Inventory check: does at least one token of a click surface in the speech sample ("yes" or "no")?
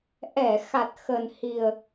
no